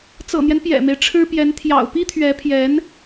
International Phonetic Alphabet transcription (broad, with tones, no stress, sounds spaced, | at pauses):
t͡s ɤ̰˨˩ n̪ j ɛ˦ n p j ɛ̰˨˩ m e˦ ɪ̯ ʈ͡ʂʰ ɻ̩˥ p j ɛ˧˥ n t̪ʰ j ɑ̰˨˩ ʊ̯ p i˥ t̪ʰ ɥ ɛ˧˥ pʰ j ɛ˧˥ n